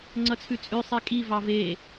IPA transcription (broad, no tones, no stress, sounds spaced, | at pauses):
ŋ͡ǀ ʌ t͡sʰ ʉ t͡sʼ ʉ sˤ ɛ kʼ i v ɑ v e